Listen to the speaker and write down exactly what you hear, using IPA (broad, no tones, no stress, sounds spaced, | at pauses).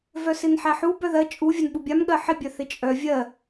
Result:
v œ s ɪ n ħ æ ħ u b œ ð ɜ t͡ʃʼ u vʲ ɜ n ɓ u bʲ a m ɠ ɜ ħ ɪ bʲ œ θ ɪ t͡ʃʼ œ vʲ ɜ